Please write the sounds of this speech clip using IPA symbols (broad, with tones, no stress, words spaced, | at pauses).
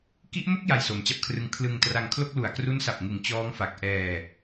ki˦˥ʔmo˥˩k̚ ja˧jso˩˦mt͡ɕa˦˥p̚kʰrɯ˦˥ŋ kʰlɯ˧ŋtra˧ŋ kʰlo˥˩k̚ lu˨˩a̯kru˦˥nsa˨˩p̚ŋɯ˨˩ŋ t͡ɕɔː˦˥ŋfa˨˩k̚ ʔɛː˧